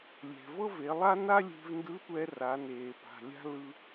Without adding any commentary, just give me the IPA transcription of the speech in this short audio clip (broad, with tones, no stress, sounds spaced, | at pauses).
lʲ ɛ̤˩ v ɤ˥ v e˩˧ lˠ a˥ n a˥ lʲ e̤˧ v n d ɯ˧˥ tʷ ɛ˧ r a˩˧ n eː˩ p a̤˩ lʲ a̤˥ l ɯ˧